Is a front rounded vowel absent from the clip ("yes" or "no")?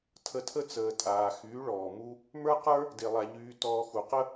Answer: no